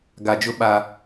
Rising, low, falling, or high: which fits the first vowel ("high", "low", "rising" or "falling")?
low